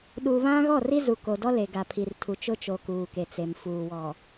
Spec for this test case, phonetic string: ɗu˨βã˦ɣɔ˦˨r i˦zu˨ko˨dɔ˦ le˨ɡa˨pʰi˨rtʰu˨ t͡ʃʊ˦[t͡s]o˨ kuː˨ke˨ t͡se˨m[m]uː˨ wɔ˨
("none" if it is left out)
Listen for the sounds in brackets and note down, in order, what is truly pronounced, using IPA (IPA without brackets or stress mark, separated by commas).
t͡ʃ, f